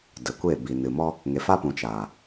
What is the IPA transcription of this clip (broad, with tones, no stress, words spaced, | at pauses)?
də˨kʷe˦˨ bi˨nɨ˨mɔ˦ | ŋe˨fa˦pũ˨ t͡ʃaː˨